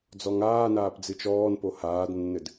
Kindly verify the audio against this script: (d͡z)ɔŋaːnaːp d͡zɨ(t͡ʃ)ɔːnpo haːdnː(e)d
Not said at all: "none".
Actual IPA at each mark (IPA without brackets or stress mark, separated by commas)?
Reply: d͡z, t͡ʃ, ɘ